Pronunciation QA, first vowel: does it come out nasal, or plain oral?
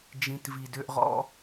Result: nasal